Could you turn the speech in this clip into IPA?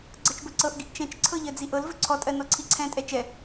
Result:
ɡ͡ǀɤt͡ʃbɵǀɤʔɡiʔ t͡ʃɛ̃t͡ʃǀʰɤ ʎɜd͡ziʔɤlvɵ ǀʰɔtʼɜ nɔǀʰiǀʰɛ̃tʼɛ t͡ʃɛ

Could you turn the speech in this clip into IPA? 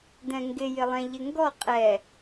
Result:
dɛ̃ŋɡɪjɪlˠɛ̃ ʎɪŋɡɔ qʼɛ

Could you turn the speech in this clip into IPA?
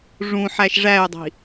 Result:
ʐũ ħæʃʐæy̯dˤi̤

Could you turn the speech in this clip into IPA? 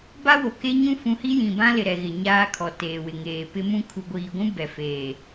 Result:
ba˦wo˨ke˦ ɲũ˦fũ˨˦hi˦jĩ˨ bã˦lɪ˨ ɾɛ˨ɣɪ˨ ɲaː˦kʰɔ˨ teː˨wɪ˨ŋeː˨ pɪ˦mũ˦ kʰu˨ɡʷiː˨ɡʷũ˦ bɛ˨feː˨

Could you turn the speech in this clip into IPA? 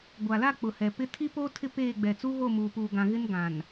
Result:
ɡʷa˨la˦˨ k͡pʊ˨hɛ˨pɪ˦ tʰi˦ po˦ tʰɪ˦peː˦˨ɡ͡bɛ˨ t͡su˦ɣo˦˨muː˨ puː˨ɡã˨ɣɪ˦n ɡã˨n

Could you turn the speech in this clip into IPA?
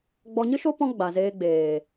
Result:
ɡ͡bɔ˧ɲɨ˦ʃo˦ pɔ̃˦ɡ͡ba˨zeː˧ɡ͡beː˨

